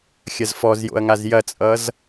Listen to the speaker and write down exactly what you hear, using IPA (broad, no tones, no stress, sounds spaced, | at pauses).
xʲ ɐ z f ɔ z j o̰ ɐ̯ ŋ a z j ɐ t͡sʼ ʌ z